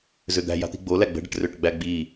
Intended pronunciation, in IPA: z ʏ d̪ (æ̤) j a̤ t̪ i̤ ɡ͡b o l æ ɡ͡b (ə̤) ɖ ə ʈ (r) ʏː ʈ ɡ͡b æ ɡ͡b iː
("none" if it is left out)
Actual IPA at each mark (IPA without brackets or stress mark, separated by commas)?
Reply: æ̤, ə̤, r